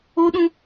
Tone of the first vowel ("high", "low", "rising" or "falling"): high